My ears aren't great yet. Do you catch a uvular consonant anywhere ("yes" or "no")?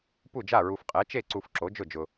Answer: yes